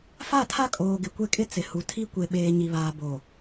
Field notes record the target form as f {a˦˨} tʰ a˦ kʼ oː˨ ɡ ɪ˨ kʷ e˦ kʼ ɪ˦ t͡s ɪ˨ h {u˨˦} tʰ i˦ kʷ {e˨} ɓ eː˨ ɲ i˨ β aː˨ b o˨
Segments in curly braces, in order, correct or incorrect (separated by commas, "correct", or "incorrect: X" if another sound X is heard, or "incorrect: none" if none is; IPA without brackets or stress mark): correct, incorrect: u˨, correct